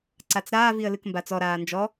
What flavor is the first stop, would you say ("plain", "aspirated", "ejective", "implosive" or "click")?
click